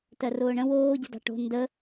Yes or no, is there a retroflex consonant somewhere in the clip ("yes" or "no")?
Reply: yes